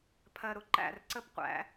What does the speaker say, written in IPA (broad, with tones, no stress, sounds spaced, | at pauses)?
pʰ ɜ˨ ɾ ʊ˨ ǃ æ̰˦˨ r ǀ ə˦ p qʷ æ̰˦